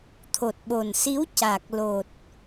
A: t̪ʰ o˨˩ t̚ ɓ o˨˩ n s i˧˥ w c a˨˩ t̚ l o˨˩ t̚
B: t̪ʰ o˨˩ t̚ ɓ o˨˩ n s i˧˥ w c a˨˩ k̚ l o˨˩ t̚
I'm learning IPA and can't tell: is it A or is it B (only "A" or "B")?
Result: B